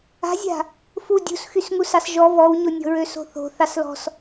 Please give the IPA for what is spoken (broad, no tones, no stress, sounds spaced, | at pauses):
a̤ zʲ a̤ | f u dʲ ṳ s x y s ŋ u s ɑ s ʒ ɔ v ɔ w ɲ o nʲ ɔ̤ ɹ ø s o̤ θ o̤ θ ɑ s l ɔ̤ s